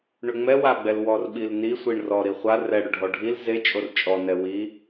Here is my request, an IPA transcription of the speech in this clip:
ɳ ʏ ŋ͡m ɛ w a ɡ͡b ɛ l w ɔ r ɓ i l n i sʷ i ɳ r ɔ ɾ i χʷ a r ɛ ɽ ʏ ɖʱ ɔ ɖʱ i l z e t͡ʃʼ o r t͡ʃʼ ɔ n ɛ w i

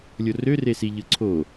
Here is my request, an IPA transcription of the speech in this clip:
lʲ o r ø r e s i ʎ ɯ ǀʰ o

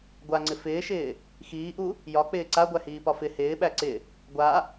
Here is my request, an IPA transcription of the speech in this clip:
ɡʷ a ŋ͡ǀ ɪ f ɪː ʃ ɪː | x iː ʔ u | j ɒ k͡p ɪː ǀ a ɡʷ æ h iː p ɒ f ɪ h ɪː ɓ æ ǀ ɪ | ɡʷ a

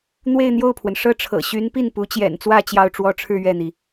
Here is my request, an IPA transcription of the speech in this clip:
n̪ w e˥˧ ɪ̯ n̪ j o˥˩ ʊ̯ pʰ w ə˩ n ʂ ɤ˥˩ ʈ͡ʂʰ ɤ̰˨˩ ɕ y˧˥ n p i˥˩ n p u˧˥ t͡ɕ j ɛ̰˨˩ n t͡s w ä˥˧ t͡ɕ j ɑ˥˩ ʊ̯ ʈ͡ʂ w ɔ˥ ʈ͡ʂʰ ɻ̩˥˧ ɥ ɛ˥˩ n̪ i˩

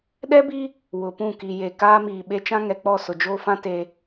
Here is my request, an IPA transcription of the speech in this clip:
ɗ ɛ˦ b i˦ | w ʊ˨ p ũ˦˨ k i˨ j e˨ k aː˦ m iː˨ ɓ e˦ t͡ʃ ã˦ ŋ ɛ˨ k͡p ɔ˦˨ s ʊ˨ d͡ʒ oː˦ f ã˦ t e˦

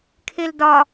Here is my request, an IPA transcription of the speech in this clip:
kʰ e l d ɒ

